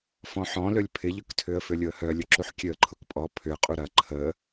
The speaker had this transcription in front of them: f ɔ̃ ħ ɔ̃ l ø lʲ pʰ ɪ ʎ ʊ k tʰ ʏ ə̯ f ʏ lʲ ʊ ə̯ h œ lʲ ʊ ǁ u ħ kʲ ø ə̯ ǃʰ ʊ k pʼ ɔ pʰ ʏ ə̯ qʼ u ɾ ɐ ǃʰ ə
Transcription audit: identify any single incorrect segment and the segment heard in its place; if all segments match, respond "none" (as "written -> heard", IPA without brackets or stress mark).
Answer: none